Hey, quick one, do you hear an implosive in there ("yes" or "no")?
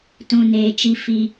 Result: no